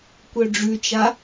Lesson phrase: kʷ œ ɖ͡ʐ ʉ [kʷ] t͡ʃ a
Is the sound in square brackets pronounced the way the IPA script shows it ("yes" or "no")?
no